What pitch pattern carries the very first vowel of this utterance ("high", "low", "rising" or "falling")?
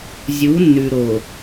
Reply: rising